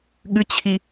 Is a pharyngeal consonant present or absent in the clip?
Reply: absent